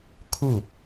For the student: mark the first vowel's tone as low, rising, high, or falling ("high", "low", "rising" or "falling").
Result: falling